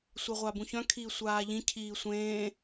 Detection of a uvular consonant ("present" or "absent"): present